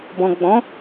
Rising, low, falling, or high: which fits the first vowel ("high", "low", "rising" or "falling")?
low